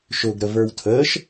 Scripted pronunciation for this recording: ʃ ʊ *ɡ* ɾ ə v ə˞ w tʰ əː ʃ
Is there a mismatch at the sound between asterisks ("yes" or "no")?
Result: no